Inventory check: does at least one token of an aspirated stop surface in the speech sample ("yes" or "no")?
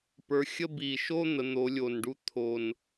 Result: yes